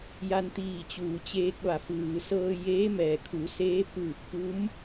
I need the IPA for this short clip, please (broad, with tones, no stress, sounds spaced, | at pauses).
j a˧ n t̪ iː˧˩ t͡ɕ uː˩ t͡ɕ eː˧ k̚ ʋ a˩˧ f ɯː˩ s ɤː˧ j eː˧˥ m ɛː˩ kʰ u˩˧ s eː˧˥ p ɯː˧˩ p̚ k u˧˥ m